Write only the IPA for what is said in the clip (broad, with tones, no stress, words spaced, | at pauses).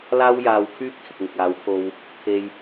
laː˥wjaː˧wkʰyː˥p̚kʰɪ˨k̚ ŋɪ˨k̚aː˨˥wpʰo˧w | t̪ʰe˧j